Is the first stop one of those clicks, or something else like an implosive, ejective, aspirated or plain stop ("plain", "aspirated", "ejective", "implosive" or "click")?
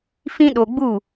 implosive